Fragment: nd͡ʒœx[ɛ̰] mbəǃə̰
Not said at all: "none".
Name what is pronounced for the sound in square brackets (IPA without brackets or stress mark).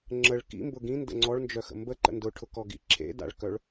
ə̰